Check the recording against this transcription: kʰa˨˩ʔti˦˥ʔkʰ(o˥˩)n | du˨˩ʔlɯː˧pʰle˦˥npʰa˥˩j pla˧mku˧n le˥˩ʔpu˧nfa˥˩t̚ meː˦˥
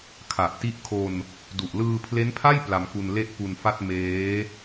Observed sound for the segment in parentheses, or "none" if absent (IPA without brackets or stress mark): o˧